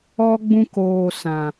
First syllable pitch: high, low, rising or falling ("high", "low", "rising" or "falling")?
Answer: high